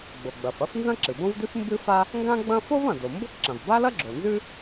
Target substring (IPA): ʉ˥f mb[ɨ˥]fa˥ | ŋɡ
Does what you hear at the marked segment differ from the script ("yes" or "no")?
no